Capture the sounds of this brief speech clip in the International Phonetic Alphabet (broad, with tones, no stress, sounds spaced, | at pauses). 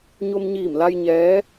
ɲ o˧ m ɲ iː˧˩ m l a˧ j ɲ ɛː˧˥